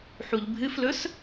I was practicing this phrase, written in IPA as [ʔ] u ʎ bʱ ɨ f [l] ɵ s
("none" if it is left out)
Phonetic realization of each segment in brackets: ħ, l

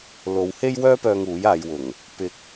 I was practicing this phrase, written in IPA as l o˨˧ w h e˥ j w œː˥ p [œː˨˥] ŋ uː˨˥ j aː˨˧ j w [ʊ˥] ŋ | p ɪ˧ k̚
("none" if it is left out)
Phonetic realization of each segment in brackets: œː˧, ʊ˨˩

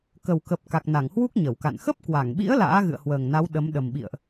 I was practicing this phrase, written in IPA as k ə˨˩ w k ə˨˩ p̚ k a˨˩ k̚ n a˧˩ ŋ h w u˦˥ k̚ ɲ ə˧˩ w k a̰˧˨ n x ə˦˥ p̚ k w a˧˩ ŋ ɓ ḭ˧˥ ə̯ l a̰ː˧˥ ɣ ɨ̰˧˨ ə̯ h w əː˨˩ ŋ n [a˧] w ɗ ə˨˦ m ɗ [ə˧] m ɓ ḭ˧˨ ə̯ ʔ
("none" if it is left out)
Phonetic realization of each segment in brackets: a˨˦, ə˨˩

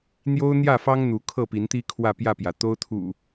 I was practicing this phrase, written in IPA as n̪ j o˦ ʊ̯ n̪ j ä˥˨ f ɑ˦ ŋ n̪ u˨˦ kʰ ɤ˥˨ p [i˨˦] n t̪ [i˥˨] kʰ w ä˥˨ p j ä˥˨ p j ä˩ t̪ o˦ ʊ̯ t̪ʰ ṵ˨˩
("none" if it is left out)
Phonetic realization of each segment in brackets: i˨˦, i˦

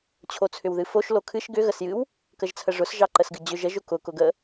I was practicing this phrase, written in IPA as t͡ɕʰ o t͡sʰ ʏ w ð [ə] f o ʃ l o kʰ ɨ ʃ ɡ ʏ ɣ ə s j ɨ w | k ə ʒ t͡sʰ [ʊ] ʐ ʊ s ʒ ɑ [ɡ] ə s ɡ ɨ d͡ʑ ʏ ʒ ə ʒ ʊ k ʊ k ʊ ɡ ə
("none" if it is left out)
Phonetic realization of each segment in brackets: ɨ, ə, ǃ

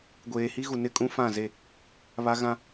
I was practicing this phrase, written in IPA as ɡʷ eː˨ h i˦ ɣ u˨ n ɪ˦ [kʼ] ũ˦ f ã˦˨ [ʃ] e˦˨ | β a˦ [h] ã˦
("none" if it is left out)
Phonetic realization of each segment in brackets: kʼ, z, ɣ

